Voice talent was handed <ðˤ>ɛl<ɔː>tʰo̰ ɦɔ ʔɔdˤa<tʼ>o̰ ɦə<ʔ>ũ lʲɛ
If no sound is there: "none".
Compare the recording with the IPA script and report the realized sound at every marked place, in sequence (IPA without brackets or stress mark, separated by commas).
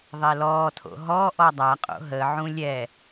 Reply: ðˤ, ɔː, qʼ, ʕ